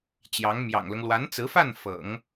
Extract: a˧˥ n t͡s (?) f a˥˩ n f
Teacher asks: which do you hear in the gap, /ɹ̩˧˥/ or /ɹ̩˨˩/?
ɹ̩˧˥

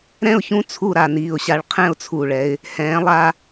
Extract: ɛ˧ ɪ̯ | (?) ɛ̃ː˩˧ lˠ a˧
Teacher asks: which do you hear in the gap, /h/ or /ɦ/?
h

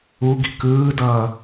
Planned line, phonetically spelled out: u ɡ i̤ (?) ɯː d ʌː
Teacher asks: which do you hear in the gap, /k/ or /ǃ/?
k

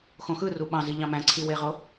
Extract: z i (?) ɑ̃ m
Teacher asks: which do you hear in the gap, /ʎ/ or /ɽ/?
ʎ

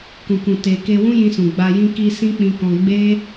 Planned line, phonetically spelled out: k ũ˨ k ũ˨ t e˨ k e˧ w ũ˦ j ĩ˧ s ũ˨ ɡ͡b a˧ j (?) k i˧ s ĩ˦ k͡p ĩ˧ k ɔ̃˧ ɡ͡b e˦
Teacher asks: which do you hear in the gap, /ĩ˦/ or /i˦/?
ĩ˦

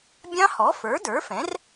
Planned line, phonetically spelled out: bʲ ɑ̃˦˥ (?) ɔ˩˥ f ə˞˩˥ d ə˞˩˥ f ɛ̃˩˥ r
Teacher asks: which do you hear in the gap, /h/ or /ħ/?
h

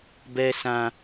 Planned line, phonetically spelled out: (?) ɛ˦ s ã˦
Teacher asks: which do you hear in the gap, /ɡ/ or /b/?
b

